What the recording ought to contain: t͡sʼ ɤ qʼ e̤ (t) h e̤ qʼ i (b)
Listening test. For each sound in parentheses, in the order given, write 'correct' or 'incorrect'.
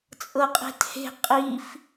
correct, incorrect

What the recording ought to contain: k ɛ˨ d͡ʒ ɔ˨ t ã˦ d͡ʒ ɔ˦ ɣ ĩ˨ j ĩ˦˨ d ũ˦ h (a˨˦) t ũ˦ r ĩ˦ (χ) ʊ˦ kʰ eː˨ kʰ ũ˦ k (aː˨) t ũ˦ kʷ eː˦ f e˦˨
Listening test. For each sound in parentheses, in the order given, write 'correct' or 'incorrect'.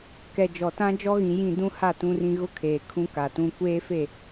incorrect, incorrect, incorrect

